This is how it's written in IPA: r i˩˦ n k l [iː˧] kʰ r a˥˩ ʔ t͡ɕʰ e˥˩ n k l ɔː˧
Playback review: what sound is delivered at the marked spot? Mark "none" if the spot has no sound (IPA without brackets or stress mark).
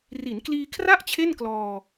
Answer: iː˧